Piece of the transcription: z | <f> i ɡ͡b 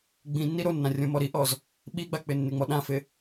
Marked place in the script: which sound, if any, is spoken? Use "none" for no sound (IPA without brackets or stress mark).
ɓ